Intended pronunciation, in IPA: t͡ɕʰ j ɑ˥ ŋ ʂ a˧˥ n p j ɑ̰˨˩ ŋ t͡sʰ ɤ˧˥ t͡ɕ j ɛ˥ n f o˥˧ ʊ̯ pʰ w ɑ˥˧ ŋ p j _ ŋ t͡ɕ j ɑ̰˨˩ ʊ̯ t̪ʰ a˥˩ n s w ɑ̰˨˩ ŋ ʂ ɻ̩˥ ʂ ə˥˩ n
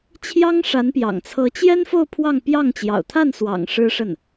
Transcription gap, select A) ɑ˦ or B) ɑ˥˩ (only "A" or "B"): B